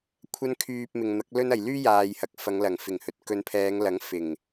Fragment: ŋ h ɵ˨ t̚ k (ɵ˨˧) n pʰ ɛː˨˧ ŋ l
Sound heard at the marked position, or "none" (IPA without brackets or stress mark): ɵ˨˧